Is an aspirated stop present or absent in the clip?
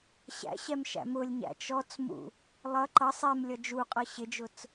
absent